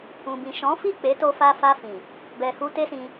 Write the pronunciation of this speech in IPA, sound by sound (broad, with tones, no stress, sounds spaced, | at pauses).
ũ˨ b ĩ˨ ʃ ɔ̃˨˦ f i˦˨ k͡p e˨˦ t o˧ f a˧ f a˧ f ĩ˨ | b ɛ˨ h u˧ t e˦ s ĩ˧